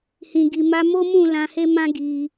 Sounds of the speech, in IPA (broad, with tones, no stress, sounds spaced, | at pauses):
h ĩ˨ ɡ i˨ m a˧ m o˦ m ũ˦˨ l ã˧ h e˦ m ã˦ ɡ i˧